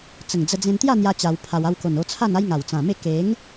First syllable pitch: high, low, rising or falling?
low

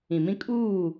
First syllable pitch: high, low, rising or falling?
low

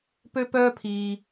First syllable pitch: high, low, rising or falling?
high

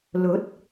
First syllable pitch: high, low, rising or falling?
rising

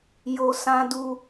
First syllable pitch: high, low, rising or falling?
low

